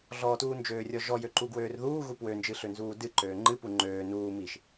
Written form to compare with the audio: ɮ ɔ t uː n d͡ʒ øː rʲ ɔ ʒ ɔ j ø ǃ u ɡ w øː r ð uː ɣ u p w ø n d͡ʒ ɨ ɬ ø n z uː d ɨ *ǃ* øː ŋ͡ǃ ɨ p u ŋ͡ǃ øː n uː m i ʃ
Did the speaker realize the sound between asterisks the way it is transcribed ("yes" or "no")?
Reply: yes